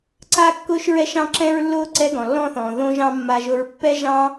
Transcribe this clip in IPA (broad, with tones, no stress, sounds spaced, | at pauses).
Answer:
ǀ a˧ kː ʊː˧ ʃ ɹ ɛ˧ ʃ ɑ̃˧ ǁ ɛ̃˧ ɹ lː ʊː˧ ǀ ɛ˧ ɡ ɔ̃˩ lː ɔ̃˧ θ ɔ̃ː˩ ð õ˧ ʒ ɑ̃˧ mː a˧ ʒ ʊ˧ ɹ pː ɛ˧ ʒ ɑ̃˧